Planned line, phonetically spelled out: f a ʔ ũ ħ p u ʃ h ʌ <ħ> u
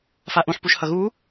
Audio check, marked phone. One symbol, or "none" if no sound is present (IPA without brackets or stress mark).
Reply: ɣ